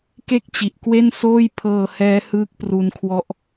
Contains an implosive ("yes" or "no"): no